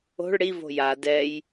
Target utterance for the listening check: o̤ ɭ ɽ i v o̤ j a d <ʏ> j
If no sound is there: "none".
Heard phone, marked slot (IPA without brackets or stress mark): ɛ